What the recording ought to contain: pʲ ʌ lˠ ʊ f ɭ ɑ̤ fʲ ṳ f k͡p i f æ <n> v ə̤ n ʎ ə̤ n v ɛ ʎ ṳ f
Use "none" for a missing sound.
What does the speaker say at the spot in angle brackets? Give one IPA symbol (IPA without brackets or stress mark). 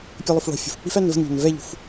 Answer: n